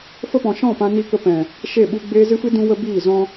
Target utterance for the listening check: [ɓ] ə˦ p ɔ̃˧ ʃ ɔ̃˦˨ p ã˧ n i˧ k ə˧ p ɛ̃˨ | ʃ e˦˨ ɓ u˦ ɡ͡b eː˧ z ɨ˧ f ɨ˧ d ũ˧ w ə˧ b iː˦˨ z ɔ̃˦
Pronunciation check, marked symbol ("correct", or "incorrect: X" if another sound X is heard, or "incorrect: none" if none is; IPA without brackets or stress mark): incorrect: f